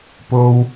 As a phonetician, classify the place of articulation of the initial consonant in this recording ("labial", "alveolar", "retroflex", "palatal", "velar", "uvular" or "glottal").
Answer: labial